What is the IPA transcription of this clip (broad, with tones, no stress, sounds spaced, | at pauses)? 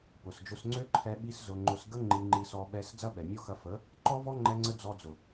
p ʊ˨ s d͡ʒ ʊ˧ s ŋ͡ǀ ø˦ ǃʰ ɛ˧ ɓ i˦ s z ʊ˧ ŋ͡ǃ ʊ˧ s ɡ ə˦ ŋ͡ǃ i˧ ŋ͡ǃ i˧ s ɔ˧ ɓ ɛ˦ s d͡z ɐ˦ ɓ ɛ˨ mʲ ɔ˦ x ɐ˧ f ə˨˦ | ǃ ɔ˦ v ɔ˦ ŋ͡ǃ ɛ˧ ŋ͡ǀ ə˦ d͡z ɔ˧ d͡z ʊ˨